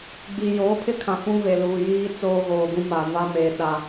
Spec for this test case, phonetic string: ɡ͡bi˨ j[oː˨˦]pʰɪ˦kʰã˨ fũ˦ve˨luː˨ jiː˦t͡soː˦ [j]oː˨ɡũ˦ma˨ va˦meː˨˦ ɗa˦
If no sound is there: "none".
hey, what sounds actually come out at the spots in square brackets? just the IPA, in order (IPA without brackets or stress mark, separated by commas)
oː˨˦, ɣ